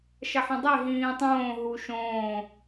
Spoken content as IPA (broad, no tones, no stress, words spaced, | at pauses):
ʃɐħɐ̃dˤe ɦĩːtˤõː ɦuʃõː